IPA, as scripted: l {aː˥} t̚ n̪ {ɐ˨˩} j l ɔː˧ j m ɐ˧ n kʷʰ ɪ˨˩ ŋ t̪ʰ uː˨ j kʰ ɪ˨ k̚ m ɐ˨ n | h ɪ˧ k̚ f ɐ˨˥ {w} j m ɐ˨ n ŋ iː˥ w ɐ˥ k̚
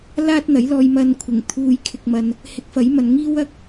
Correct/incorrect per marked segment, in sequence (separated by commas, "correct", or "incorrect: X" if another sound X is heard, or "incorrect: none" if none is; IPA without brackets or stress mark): correct, incorrect: ɐ˨˥, incorrect: none